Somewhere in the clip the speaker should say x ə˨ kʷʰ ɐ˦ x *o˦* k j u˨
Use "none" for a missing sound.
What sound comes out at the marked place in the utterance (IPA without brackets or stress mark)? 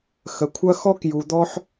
ɔ˦